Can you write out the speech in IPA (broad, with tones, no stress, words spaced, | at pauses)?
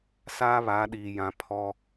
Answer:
saː˦βa˨˦ɗiː˨jã˨ pʰɔ˦